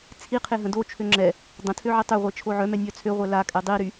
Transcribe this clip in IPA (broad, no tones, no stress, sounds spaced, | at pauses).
t͡sʰ i qʰ e ɦ ə̃ d o t͡ʃʰ ø ŋ͡ǁ ɛ | dˤ ə̃ tʰ ø ʕ e tˤ ø ʁʷ e t͡ʃʰ o ʕ œ m ɛ nʲ œ t͡sʰ ø ʁʷ ɛ l a kʼ ɛ dˤ i ɾ y